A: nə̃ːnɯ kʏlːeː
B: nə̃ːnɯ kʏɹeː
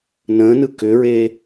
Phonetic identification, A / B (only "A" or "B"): B